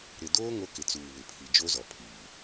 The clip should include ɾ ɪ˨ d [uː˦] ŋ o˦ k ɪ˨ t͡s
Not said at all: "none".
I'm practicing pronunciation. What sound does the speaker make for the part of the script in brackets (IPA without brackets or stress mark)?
oː˦